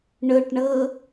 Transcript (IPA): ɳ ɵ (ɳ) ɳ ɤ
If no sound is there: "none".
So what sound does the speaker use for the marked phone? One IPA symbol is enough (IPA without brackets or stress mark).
ʈ